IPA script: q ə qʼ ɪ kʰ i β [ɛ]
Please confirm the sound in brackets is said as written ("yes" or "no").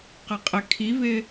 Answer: no